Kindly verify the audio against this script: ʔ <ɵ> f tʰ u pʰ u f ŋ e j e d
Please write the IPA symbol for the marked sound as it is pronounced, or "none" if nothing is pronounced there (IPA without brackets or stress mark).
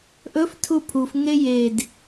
ɵ